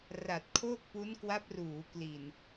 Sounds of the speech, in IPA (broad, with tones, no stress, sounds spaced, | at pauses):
r a˨˩ t̚ kʰ o˥˩ k̚ p u˦˥ n k w a˦˥ p̚ r uː˩˦ k l i˨˩ n